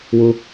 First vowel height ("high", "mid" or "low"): high